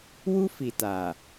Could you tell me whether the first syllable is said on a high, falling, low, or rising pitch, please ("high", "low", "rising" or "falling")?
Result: high